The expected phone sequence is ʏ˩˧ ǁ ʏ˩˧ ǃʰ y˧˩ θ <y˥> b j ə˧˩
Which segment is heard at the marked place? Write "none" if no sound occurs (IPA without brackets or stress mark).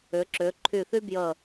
y˥